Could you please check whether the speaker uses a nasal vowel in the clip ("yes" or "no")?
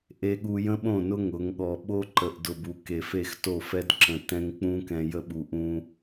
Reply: yes